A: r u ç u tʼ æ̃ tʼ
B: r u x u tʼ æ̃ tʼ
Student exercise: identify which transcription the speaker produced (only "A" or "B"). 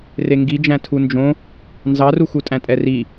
B